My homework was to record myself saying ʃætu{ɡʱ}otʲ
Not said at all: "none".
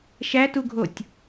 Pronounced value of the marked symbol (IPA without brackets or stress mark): ɡʱ